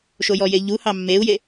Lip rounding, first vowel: rounded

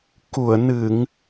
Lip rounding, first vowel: rounded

